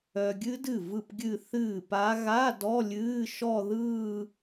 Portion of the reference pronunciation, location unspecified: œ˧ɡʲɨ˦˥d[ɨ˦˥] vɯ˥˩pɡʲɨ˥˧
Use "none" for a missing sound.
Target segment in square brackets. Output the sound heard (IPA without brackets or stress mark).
ɨ˥˩